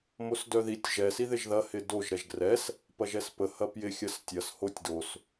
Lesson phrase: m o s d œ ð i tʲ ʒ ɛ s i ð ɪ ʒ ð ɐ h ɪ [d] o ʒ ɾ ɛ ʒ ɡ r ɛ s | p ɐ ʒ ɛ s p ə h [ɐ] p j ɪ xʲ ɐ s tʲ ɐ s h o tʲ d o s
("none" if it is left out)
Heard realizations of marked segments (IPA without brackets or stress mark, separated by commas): d, ɐ